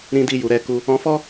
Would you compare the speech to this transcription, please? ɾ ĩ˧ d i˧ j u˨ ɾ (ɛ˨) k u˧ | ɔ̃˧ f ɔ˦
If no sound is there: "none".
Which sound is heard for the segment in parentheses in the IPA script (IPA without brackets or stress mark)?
ɛ˧